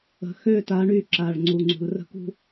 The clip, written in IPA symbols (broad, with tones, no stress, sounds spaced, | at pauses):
ə̤˨ x ø˦˨ t a˨˦ ɳ y˨ ǁ a˨ ɭ ŋ͡ǀ u˨ ŋ͡ǀ ṳ˨ l r ə̤˦ k ṳ˦